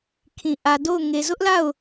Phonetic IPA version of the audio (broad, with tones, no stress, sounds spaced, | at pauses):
kʰ ĩ˨ ʔ ä˨ d o˦˨ ʊ̯ ŋ e˨ z ʊ˦ ʔ l a˦˨ ʊ̯